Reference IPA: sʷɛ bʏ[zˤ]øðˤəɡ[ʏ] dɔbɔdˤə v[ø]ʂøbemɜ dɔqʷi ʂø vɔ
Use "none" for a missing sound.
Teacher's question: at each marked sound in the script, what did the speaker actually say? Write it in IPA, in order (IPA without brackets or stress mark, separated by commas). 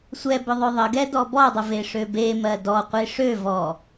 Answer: ðˤ, ɛ, e